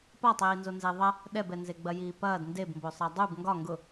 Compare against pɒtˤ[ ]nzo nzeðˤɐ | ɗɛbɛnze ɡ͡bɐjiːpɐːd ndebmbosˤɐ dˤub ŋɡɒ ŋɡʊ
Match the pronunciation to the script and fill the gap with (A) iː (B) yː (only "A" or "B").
A